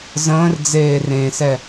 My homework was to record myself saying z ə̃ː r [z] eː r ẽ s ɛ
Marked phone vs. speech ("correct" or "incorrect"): incorrect